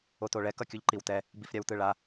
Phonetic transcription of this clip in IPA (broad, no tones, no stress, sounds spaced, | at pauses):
o t o ɭ ɛ k ʌ kʲ u ʎ ǃ i w t ɛ | b i f ɾʲ a w t ɯ ɭ a